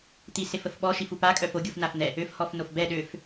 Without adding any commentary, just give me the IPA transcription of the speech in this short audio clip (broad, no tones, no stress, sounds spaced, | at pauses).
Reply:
t̪ i s e f ə f ɓ ɔ ʃ i f u p a kʼ œ f o ɡʲ u f n a f n̪ ɛ | ø f h ɔ f n o f b ɛ ɗ ø f